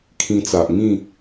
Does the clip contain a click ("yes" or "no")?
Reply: no